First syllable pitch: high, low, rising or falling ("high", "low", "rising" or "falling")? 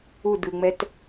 falling